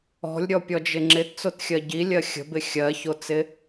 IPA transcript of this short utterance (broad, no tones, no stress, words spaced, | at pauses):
ɔ̤lʲɾʲɔpʲɔd͡ʒɪ ŋ͡ǁɪtt͡sotxʲɜ ɟilʲɜ xʲə̤bɪ xʲɜçot͡sɪ